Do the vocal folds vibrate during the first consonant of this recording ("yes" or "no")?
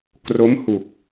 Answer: no